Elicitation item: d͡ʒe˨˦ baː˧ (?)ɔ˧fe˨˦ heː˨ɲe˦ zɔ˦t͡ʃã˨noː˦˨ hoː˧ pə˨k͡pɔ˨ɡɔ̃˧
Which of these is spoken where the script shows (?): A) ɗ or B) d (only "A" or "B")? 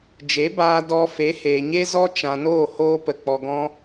B